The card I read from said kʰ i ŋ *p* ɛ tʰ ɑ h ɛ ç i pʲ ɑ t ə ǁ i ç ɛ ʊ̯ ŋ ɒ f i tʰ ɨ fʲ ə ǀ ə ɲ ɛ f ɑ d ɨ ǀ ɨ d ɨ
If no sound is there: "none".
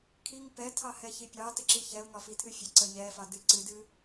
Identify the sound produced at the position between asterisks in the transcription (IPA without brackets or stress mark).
p